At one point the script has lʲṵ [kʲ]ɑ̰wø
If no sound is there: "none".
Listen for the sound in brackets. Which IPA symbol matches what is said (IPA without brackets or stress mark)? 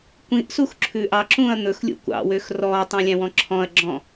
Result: kʷ